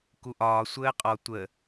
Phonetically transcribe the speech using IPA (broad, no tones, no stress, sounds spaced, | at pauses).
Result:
k u ʔ ɒː sʷ əː qʼ ɔ tʷ ə